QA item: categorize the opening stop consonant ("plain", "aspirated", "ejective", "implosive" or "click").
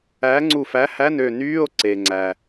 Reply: click